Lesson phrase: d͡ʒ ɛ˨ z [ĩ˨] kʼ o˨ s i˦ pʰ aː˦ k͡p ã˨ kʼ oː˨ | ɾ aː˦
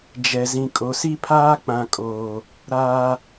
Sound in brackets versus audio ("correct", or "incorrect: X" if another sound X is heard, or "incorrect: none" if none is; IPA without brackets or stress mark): correct